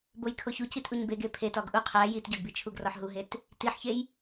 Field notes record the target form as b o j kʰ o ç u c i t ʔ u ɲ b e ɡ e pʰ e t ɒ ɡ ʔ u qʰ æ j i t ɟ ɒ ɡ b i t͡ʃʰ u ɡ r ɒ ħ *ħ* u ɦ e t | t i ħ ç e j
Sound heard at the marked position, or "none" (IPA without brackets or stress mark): ɦ